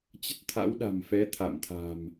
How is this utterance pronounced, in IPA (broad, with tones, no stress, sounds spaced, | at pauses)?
t͡ɕ ə˦˥ t̚ t̪ʰ a̰˧˥ w ɗ a̤˨˩ m f ɛ˨˦ t̪ʰ a̰˧˨ m t̪ʰ a̤˨˩ m